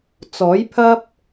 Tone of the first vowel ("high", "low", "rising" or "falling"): rising